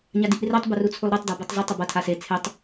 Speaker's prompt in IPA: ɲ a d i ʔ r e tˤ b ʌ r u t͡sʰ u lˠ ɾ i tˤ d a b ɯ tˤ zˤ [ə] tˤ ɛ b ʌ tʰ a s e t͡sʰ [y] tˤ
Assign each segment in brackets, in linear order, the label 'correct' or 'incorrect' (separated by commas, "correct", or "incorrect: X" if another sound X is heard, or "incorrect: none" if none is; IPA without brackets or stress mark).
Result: incorrect: ɯ, incorrect: e